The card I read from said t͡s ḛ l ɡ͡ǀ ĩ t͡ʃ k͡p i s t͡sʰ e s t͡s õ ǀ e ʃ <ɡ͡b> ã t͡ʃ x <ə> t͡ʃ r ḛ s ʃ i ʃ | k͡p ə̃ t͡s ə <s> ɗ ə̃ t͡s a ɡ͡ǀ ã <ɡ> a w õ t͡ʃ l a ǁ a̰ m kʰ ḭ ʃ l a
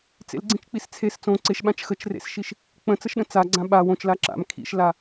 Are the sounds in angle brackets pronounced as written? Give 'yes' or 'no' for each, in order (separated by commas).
no, yes, no, no